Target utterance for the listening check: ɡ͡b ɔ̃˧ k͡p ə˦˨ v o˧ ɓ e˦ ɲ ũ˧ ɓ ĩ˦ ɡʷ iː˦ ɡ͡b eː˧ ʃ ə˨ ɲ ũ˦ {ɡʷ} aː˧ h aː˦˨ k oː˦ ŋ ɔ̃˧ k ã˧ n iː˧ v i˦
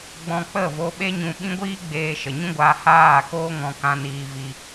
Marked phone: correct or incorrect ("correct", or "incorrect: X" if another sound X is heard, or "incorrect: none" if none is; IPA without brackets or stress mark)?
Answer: correct